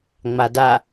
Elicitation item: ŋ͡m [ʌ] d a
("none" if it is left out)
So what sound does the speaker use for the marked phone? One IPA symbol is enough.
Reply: a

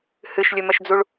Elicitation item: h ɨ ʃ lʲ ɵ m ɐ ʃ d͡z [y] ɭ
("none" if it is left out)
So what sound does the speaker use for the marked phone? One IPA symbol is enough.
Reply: u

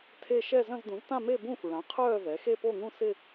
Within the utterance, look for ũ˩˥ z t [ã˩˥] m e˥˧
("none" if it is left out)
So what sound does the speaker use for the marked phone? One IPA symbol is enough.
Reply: ã˥˧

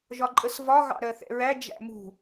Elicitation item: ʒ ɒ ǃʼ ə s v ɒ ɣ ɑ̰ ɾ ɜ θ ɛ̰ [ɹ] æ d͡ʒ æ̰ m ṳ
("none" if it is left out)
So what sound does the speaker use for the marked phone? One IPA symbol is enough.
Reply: ɹ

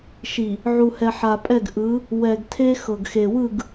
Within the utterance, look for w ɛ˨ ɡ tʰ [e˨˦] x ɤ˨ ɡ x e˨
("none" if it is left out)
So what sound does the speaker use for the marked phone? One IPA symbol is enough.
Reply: e˦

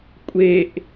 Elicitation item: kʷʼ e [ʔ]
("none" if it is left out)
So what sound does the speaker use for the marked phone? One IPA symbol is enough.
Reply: ʔ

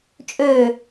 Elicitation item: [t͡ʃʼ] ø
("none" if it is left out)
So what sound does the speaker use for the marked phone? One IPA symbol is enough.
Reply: t͡ʃʼ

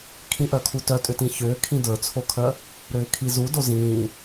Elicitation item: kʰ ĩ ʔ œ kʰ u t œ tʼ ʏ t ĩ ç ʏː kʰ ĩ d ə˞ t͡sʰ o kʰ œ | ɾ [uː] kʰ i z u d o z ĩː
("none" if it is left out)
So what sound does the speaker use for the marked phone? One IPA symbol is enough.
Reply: ʏː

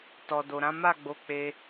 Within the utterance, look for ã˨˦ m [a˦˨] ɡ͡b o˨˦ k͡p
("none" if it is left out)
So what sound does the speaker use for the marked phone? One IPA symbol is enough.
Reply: a˦˨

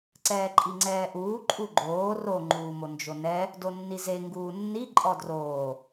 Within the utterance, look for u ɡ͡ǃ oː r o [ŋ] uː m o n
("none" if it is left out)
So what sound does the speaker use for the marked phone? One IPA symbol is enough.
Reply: ŋ͡ǃ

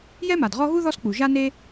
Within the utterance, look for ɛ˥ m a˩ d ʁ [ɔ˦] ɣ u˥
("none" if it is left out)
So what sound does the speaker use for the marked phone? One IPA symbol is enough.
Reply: ɔ˦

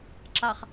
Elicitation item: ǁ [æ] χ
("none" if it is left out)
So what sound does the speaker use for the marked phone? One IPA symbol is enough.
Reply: a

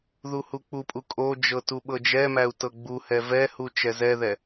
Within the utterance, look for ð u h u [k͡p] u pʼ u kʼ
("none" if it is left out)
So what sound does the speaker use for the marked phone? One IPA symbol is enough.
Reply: k͡p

